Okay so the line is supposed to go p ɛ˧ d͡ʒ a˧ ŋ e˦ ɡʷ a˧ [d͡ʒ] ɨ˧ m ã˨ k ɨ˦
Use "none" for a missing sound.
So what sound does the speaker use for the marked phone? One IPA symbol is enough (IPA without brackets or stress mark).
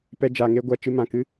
t͡ʃ